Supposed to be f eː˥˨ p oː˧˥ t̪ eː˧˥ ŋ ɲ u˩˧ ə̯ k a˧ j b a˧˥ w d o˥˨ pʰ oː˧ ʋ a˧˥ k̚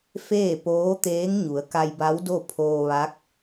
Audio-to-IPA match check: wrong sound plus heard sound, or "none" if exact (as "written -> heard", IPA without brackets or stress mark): none